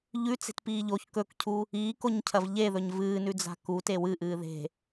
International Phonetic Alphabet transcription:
ʎʉ t͡se̤tpiːʎoç kɵkcʰu | iːkoɲcʰɐv ʎeðɵɲ vɨːnʉd͡za̤ ku tewɨʔɨː ðe̤

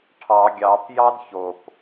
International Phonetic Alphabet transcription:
ʈʰɑ ɡʲɑpjɑd çop

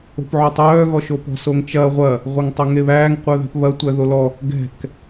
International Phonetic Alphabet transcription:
o̤pʕotˤœː ɣɔʃopɔ̤ soŋt͡ʃɐ ʁʷɐ | ʁʷœŋtˤoŋeβæːŋ qʷœðɛ̤pβɐ tʷæðolɔ | ɡɛ̤k

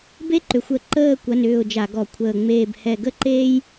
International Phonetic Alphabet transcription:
be˥ǃʏ˨˩xʷə˧˩˧ ǃəː˦˨ kʷɐ˧˥˧nʏː˦˨ʊ̯d͡ʒa˧˩˧ɡɔ˧˩˧ kʷʰəː˨˩ŋ͡meː˦˨b hɛ˦˨ ɡə˥ǃeː˥j

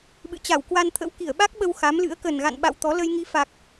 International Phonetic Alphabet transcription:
ɓɨ̰˧˨t͡ɕa˧˩w kwa˧nt̪ʰə̰˧˥w ki˧˩ə̯ɓa˦˥k̚ɓə˧w xa˨˦mlɨ̰˧˥ə̯ kə˨˩nɣa̰˧˨nɓa̰˧˨w t̪ɔ˨˦ lə˧jŋi˨˦fa˨˩k̚

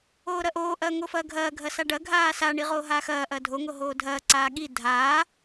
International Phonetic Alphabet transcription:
oːɾɐʔoː ʔɐːŋofɐːɡʱɐː ɡʱɐsaɖɐ ɡʱaːsa ɳiʁoːɦaːxɐː ʔɐːdʱo ŋoɦoːdʱɐː ǀaːɠi dʱaː

